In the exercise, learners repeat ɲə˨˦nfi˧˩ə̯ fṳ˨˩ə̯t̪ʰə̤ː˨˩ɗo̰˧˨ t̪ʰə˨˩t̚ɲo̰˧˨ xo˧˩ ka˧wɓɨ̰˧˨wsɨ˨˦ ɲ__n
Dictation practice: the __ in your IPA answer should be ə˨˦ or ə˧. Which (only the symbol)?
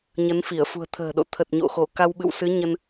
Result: ə˧